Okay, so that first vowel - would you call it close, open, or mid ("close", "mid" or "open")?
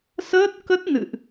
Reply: mid